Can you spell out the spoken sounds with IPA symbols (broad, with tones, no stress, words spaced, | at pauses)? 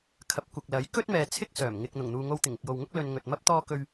kʰɐ˨˥p̚ kʷɐ˨k̚lɐ˨˥j kɵ˥t̚mɛː˨ t͡sʰɪ˥k̚sœː˨˩m ŋɪ˨k̚ n̪ʊ˨˩ŋn̪uː˨ŋo˧w t̪ɪ˨˩ŋɪ˨k̚jo˨wŋʊ˥k̚ lɵ˧nŋɵ˨t̚mɐ˥p̚ t̪ɔː˥kɵ˥ɥ